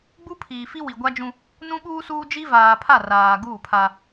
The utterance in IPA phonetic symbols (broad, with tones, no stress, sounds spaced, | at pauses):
ɡ͡b u˦ pʰ iː˨ f i˦ w i˨ ɡʷ a˦ d͡ʒ ũ˦ | n ũ˦ ɓ uː˦ s uː˦ d͡ʒ i˦ v aː˨ pʰ a˦˨ r aː˨ ɡ uː˦˨ pʰ a˦